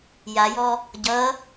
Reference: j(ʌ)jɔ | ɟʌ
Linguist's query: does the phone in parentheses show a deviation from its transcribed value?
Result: yes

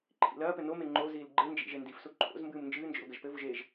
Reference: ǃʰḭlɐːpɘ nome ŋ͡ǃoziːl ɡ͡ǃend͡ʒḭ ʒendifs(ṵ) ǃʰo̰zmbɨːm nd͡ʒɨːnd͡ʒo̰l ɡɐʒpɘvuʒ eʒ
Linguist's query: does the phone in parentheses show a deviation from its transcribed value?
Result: yes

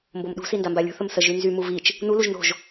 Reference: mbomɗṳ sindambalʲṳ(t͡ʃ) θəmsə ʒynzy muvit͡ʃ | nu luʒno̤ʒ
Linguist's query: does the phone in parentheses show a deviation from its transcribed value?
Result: yes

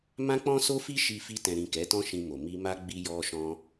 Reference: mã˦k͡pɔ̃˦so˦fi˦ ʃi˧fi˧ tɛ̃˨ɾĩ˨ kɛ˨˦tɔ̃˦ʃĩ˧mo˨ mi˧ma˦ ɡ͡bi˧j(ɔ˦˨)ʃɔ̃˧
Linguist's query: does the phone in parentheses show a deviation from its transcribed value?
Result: yes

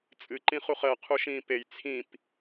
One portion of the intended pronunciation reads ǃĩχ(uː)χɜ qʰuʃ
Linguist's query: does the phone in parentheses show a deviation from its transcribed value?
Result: yes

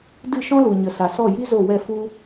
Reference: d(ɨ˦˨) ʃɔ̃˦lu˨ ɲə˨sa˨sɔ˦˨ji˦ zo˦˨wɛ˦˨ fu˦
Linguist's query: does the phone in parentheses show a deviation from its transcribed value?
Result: no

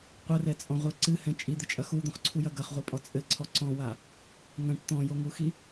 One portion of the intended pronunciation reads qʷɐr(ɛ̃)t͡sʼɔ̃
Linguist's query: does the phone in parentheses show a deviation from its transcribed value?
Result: yes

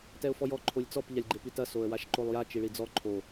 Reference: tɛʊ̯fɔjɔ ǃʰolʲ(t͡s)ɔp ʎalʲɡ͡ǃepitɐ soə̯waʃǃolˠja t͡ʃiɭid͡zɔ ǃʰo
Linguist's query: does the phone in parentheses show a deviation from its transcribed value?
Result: no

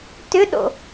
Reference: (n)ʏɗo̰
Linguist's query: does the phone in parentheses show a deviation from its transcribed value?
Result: yes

